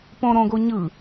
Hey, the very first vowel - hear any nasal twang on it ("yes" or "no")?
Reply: yes